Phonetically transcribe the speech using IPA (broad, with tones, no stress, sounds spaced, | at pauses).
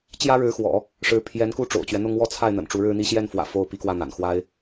t͡ɕ j ä˥ ɻ ɻ̩˧˥ x w ɔ̰˨˩˦ | ʂ ɻ̩˧˥ pʰ j ɛ˧˥ n k u˥˩ ʈ͡ʂ o̰˨˩ ʊ̯ t͡ɕ ɥ ɛ˦ n̪ ʊ˥ ŋ w ɔ˥˧ t͡sʰ a˥˩ ɪ̯ n̪ ə̰˨˩ n ʈ͡ʂ u˧˥ ɻ ɻ̩˥ n̪ i˥ ɕ j ɛ˥˩ n f w ä̰˨˩ f o˥˩ ʊ̯ p i˧˥ k w ä˥˩ n̪ a̰˨˩ n x w a˥ ɪ̯